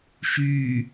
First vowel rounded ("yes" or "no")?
yes